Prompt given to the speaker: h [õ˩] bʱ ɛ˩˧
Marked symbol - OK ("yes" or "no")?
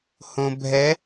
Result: yes